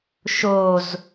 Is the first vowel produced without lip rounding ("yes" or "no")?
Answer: no